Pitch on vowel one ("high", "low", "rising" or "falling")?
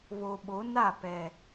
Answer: low